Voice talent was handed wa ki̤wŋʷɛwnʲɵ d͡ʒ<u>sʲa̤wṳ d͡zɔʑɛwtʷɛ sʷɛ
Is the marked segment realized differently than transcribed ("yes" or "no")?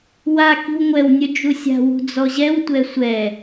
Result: no